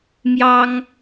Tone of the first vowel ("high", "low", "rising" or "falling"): high